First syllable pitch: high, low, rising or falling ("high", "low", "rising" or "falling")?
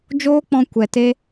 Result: high